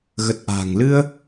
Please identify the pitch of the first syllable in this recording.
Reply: low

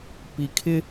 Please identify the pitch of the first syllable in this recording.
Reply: low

